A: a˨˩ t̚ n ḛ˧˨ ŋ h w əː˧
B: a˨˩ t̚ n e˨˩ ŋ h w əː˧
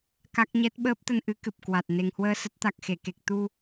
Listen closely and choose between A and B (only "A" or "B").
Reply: B